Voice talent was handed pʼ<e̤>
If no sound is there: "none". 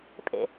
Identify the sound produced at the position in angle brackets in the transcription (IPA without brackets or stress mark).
ḛ